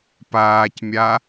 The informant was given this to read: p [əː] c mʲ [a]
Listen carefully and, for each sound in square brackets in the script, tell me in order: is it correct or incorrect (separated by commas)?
incorrect, correct